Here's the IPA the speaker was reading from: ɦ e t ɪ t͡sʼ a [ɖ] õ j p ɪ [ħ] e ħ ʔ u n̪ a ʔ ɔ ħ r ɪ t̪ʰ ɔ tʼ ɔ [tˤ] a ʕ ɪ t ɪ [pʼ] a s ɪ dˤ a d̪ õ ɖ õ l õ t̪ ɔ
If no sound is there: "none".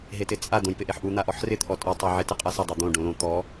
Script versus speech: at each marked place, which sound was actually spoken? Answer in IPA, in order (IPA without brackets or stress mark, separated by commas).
d̪, ʔ, tˤ, qʼ